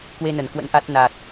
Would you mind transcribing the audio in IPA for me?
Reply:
k w e˧ n ə˧˩ n k w ə̰˧˥ n ʔ a˦˥ t̚ n a˨˩ t̚

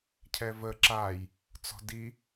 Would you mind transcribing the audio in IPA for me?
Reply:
cʰ ɛ v ə ǁ a j | t͡s ɔ̤ d i

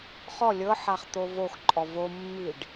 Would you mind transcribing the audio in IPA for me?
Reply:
χ ɔ lʲ ɤ ħ a χ t̪ o v o x ǃʼ ɔ v o mː i ɖ

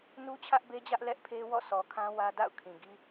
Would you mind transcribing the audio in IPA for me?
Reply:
n u˦ t͡ɕʰ ä˦ ʔ b e˦ d͡ʑ ä˦ ʔ l ɛ˦ ʔ pʰ e˦ w ɔ̰˦˨ s ɔ˨ kʰ ã˦ w ä˦ d a̰˦˨ ʊ̯ kʰ ĩ˨ ɡ i˦

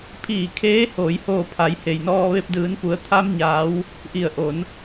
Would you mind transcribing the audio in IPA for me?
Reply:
pʰ iː˧˩ kʰ eː˧˥ h oː˩˧ j h oː˧˩ pʰ a˩˧ j h e˩ j n ɔː˧ ʋ e˧ p̚ d ɯː˩˧ n p u˩˧ ə̯ t̪ʰ a˧ m ɲ aː˩˧ w | ʔ i˧˩ ə̯ ʔ o˩˧ n

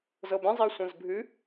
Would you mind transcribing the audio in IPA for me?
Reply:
z ɤ b ẽ zˤ iː sʷ ɛ̃ z bʱ ɨ

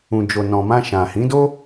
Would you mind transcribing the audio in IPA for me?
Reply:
ũ˨ d͡ʒ o˨ n ɔ̃˨ m ã˧ ʃ ã˨ h ĩ˨˦ d o˦

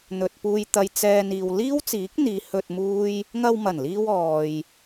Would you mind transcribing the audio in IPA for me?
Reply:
n̪ ɵ˨ t̚ p uː˧ j t̪ ɐ˧ j t͡s ɛː˧ n iː˨ w l iː˥ w t͡s iː˨˥ k̚ n̪ iː˨˧ h ɵ˧ t̚ m uː˥ j | ŋ ɐ˧ w m ɐ˨˩ n l iː˧ w ɔː˨ j

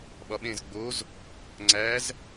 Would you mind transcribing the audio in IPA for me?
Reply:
ɓ ɒ ɓ ẽ z ɡ͡b o z | ŋ͡ǀ æ z

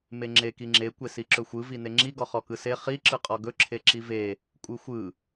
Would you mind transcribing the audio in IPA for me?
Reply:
m e ŋ͡ǁ e k i ŋ͡ǁ e kʷ e s i ǁ ɵ xʷ ɯ v i n e ŋ͡ǁ i ɡ ɔ χ ɔ k ɯ s e χ i ǁ ɯ qʼ ɔ ɡ ɵ ǁʰ e ǁ i v e | kʷʼ ɯ xʷ ɯ

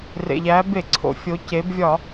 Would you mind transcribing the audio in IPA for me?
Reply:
r ḛ˩ ʎ æ˩˧ b e˧˩˧ ǀʰ o̰˩˧ fʲ o˩˧ c e˩˧ b vʲ ɒ˧˩˧

